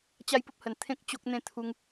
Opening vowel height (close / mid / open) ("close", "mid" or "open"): open